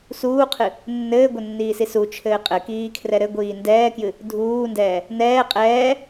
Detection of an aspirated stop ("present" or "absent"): present